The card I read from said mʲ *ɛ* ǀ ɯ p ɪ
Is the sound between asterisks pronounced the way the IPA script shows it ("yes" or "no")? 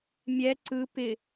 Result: yes